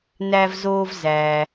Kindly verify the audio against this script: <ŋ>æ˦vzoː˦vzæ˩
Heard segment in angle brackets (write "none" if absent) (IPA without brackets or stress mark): n